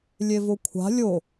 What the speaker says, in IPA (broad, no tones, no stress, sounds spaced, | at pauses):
lʲ e v o kʷʰ a̤ lʲ o